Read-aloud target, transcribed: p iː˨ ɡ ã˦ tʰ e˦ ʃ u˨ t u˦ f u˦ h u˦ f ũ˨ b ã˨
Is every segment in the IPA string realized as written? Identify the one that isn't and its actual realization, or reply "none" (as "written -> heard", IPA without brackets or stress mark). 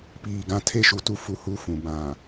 none